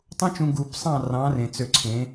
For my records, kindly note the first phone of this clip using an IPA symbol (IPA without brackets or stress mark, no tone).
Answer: tˤ